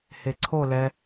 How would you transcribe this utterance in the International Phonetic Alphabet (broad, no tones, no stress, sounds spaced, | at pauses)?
h e ǀʰ o l ɛ